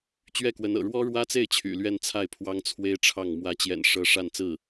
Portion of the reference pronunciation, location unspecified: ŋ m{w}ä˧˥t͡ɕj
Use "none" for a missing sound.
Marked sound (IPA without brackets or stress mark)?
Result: w